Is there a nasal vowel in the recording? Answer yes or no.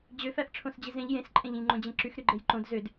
yes